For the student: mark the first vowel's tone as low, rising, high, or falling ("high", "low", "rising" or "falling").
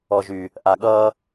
low